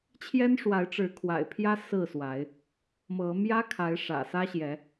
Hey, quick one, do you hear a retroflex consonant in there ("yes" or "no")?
yes